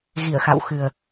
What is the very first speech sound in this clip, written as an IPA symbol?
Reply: ɣ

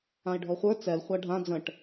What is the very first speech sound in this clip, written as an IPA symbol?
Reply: ã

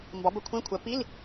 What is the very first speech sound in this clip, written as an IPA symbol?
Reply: m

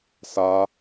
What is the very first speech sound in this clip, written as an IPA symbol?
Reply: s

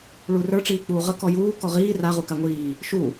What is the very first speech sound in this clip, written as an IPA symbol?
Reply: ɭ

